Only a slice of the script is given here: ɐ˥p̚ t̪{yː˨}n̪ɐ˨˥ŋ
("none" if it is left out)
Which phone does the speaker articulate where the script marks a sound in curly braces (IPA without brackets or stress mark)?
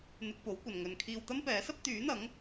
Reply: yː˨˥